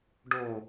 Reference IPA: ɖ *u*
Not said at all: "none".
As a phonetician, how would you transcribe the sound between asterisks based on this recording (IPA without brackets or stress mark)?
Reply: o